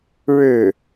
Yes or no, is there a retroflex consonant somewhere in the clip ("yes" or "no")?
yes